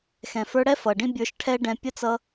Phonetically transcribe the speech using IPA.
x ɛ̃˨ f ə˞˧ ɽ ɛ˦ f ʌ˨ ɖ ĩ˦ bʲ ə˞˧ ʃ ʈʰ ɛ˦ ɖ ɛ̃˧ pʲ ə˦ t͡s ʌ˧

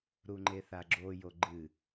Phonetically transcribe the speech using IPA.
ɾ u ŋ͡ǃ e θ a ɡ͡ǁ o j o ɡ͡ǃ ɨ

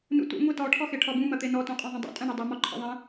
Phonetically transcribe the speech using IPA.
n ṵ t ṵ ŋʷ e t ɔ ʈʰ ɔ x e ʈʰ ɔ b ũ m ɐ t̪ e n ɔ t ũ qʼ ɔ̃ ðˤ ɐ̃ dˤ ṵ tʼ ɐ̃ ɳ e dˤ u m ɔ ǃʰ ḛ ðˤ ẽ

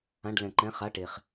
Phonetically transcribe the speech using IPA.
ã˧˥˧ ɖ l ɛ̃˧ ǃ ɛ̃˧˥˧ χ a˧˥˧ ʈ e˧ χ

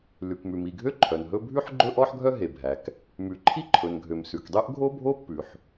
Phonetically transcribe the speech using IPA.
l ʉ˩ k m ʉ˩ m i˩ ɡʱ ø˥ ǃʰ œ˩ n ɦ ɵ˥ bʱ ʉ˥ ħ ɡ͡ǃ ɵ˥ ʔ ɔ˥ ħ ɡʱ œ˥ ɦ e˩ bʱ æ˩ k | m ʉ˩ ǃʰ i˥ ǃʰ ɵ˩ n ɡʱ ø˩ m s ʉ˩ k dˤ ø˥ ʔ ɡʱ o˥ bʱ o˥ pː ʉ˩ ħ

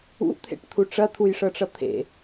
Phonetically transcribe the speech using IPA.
ṵ t̪ʰ ḛ ʈ t̪ʰ u ʈ͡ʂ ɐ t̪ʰ u j ʂ ɤ ʈ͡ʂ ʌ t̪ʰ ḛ

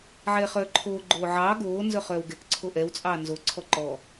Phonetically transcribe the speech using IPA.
ʕ ɛː χ œː ǃʰ oː ɡ͡ǃ oː ʕ ɑː ɡ oː n z œ χ œː w ɡ ɛ k ǀʰ o ʔ ɛ w t͡sʼ ɑː n z o ǀʰ ɔ ǃ ɔ

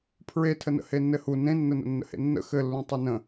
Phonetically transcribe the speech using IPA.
pʰ ɹ e tʰ ə n ə̰ h e nː ɘ h u n ẽ nː ə n ə̰ nː ə̰ h ḛ nː ə̰ x ɘ lː ũ tˤ y n ə̃

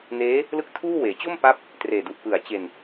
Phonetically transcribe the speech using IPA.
n eː˦˥ | l ɯ˥˩ k̚ tʰ uː˥˩ w eː˩˦ t͡ɕ o˥˩ m p a˦˥ p̚ | t r eː˨˩ d u˨˩ ʔ p ɯ˨˩ a̯ t͡ɕ e˧ n

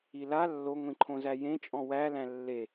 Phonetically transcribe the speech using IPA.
i l a lː o ŋʷ ĩ ǃʰ õ z æ j ẽ t͡ʃʼ ɔ̃ w æ l æ̃ lː e

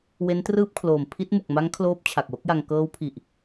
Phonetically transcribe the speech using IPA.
w e˦˥ n t r ɯː˥˩ p̚ kʰ l oː˨˩ m pʰ i˦˥ t̚ m u˨˩ k̚ m a˦˥ ŋ kʰ l oː˦˥ p̚ t͡ɕʰ a˨˩ k̚ w o˦˥ k̚ j a˧ ŋ k ɤː˦˥ w pʰ i˨˩ ʔ

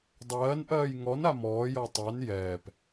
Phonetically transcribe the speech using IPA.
dˤ ɜː n ʔ ɜː j ŋ ɔ n a m ɔː j ɔ tˤ a n j ɛː p

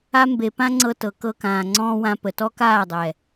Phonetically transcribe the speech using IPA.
a˧ m b e˨ p ã˦ ŋ͡ǀ ɤ˧ t ɤ˨ k ɤ˧ k ãː˨ ŋ͡ǀ ɔ̃ː˦ w ã˧ p ə˨ t ɔ˦ k aː˦˨ dˤ ɛ˨

